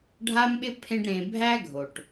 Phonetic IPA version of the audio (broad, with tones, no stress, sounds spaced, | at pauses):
ɖʱ a˥ m ɓ ɪ˥ pʰ ẽ˦ ɖ ɾ ẽ˨ bʱ æ˥ ɡʱ o˩ ʈ